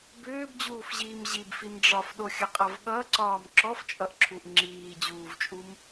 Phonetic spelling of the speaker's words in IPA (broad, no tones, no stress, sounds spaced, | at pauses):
b ʏː b d͡ʑ uː f ʑ iː m ʑ i b f i m ɖ͡ʐ ɒ f ɗ o xʲ ʌ qʼ ʌ v ɠ ʌ ǀ ɒː m ǁ ɔ f t͡ʃʼ ʌ ʔ ǁʰ u ʔ ŋ͡ǁ iː d͡ʑ uː v t͡ʃʼ u m